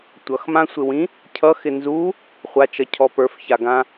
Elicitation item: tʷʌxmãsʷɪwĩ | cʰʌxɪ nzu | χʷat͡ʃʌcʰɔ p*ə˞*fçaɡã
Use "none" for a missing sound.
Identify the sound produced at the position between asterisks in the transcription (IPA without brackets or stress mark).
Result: ə˞